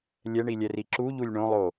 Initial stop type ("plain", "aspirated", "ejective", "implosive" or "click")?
click